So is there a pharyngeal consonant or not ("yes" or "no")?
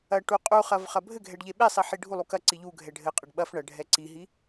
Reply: yes